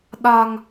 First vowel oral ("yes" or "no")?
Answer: yes